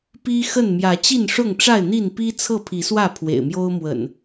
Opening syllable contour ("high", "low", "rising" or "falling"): high